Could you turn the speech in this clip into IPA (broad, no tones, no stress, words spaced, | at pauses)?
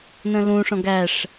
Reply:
nə̃lũʂɔ̃ɡ æʂ